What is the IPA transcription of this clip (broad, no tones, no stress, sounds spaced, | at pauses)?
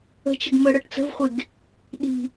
ə̤ t͡ʃ ə ɡ m ɤ ɽ ɤ ʈ t͡s ə̤ v χʷ e ɡ | ɗ i̤